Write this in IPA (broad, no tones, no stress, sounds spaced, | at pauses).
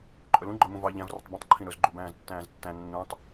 ǃʼ ɵ l ũ ɡ͡ǃ œ m ũ v ɑ ʎ æ̃ v r ɵ tˤ b ĩ tˤ ǃʰ ĩ ɾ ɵ z ɡ͡ǃ u b æ̃ː z tː æ̃ː z tː æ̃ nː ũ tˤ